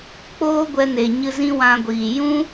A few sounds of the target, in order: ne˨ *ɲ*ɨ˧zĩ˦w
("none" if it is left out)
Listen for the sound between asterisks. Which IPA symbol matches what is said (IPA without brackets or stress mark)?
ɲ